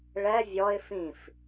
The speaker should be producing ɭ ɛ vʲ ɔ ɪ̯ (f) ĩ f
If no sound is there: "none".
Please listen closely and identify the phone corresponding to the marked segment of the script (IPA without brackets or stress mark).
f